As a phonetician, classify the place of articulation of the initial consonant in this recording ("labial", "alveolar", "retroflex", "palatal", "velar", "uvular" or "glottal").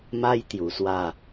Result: labial